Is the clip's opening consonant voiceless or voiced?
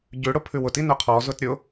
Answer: voiced